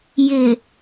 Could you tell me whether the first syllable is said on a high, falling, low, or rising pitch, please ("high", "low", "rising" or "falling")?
low